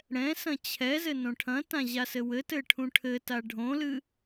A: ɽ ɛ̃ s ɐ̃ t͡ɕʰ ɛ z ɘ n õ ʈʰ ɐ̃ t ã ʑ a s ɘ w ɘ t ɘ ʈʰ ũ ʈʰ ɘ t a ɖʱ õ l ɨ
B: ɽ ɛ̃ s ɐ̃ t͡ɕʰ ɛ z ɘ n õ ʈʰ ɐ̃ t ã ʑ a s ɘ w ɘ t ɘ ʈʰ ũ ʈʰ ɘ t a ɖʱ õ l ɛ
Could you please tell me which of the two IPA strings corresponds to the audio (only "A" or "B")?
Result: A